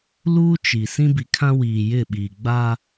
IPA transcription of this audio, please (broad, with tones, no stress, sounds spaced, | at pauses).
l uː˦ t͡ʃ i˨ s ĩ˦ b i˨ kʰ ã˦ w iː˨ j ɪ˦˨ ɓ iː˨ ɡ͡b aː˦